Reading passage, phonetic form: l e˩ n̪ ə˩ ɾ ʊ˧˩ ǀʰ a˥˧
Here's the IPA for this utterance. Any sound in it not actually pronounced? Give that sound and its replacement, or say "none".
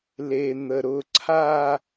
none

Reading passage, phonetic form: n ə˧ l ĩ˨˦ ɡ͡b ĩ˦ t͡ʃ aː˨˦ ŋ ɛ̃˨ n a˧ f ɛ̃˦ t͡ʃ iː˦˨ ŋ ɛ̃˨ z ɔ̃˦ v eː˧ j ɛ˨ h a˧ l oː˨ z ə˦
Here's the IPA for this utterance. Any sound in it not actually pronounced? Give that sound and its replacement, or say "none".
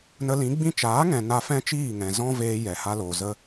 none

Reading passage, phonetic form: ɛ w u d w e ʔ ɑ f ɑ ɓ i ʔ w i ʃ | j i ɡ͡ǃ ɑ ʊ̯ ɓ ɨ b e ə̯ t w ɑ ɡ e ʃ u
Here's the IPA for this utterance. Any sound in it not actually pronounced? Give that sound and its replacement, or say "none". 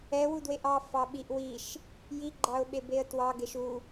ɨ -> e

